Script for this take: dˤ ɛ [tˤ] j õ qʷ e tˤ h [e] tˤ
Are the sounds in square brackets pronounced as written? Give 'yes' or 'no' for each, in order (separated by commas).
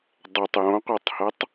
yes, no